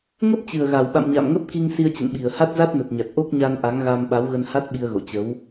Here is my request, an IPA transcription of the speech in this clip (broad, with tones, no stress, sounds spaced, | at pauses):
ŋ ə˦˥ p̚ t͡ɕ ɨ˨˩ ə̯ ɣ a˨˩ w ɓ a̰˧˨ m ɲ a̰˧˨ m ŋ ə˦˥ p̚ k i˧ ŋ s i˧ ə̯ t͡ɕ ə̰˧˨ n ɓ i˨˩ ə̯ h a˦˥ t̚ z a˦˥ t̚ n ə˨˩ t̚ ɲ a˨˩ t̚ ʔ o˦˥ k̚ ɲ a˧ n ʔ a˨˦ ŋ ɣ a˧ m ɓ a˨˦ w ɣ ə˧ n h a˦˥ t̚ ɓ i˧ ə̯ ɣ o̰˧˨ t͡ɕ ə˨˦ w